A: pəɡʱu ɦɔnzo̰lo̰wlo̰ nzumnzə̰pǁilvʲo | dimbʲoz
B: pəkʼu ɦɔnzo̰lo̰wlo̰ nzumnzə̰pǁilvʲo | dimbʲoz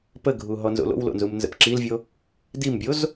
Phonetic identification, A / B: A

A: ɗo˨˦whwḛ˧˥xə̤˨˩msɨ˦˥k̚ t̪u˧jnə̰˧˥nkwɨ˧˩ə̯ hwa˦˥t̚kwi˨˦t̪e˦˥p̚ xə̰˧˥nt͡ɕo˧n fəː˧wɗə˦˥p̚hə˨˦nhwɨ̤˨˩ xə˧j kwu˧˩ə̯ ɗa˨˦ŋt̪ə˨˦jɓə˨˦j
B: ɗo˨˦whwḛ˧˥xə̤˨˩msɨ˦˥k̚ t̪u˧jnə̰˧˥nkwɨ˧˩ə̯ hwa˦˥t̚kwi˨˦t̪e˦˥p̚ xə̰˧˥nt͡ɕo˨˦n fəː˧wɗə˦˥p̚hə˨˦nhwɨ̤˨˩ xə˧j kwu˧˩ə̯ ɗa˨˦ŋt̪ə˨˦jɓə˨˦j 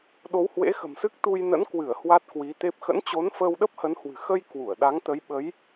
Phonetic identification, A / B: B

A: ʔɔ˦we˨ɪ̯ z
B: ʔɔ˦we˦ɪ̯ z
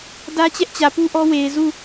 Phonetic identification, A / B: A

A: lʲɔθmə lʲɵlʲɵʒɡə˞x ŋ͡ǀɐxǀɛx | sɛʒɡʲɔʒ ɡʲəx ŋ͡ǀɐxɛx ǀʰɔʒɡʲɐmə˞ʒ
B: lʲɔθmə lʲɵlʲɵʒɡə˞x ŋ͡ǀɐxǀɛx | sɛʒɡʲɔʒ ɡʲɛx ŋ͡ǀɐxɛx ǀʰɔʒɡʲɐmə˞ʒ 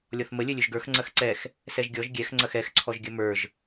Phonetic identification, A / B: B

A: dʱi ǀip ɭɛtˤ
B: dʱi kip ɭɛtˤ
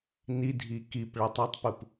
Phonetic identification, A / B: B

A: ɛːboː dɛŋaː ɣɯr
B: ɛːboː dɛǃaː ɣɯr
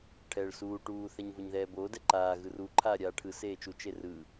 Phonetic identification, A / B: B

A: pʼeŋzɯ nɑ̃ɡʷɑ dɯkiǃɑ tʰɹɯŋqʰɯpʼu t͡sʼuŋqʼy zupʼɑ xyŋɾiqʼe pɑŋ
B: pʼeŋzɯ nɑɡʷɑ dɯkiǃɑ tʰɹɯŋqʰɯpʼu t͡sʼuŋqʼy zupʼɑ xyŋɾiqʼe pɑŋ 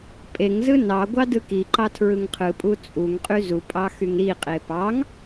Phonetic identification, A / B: B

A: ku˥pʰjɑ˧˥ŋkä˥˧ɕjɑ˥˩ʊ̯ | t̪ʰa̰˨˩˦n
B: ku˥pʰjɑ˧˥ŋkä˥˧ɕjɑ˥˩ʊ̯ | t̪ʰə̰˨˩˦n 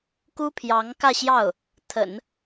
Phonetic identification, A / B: B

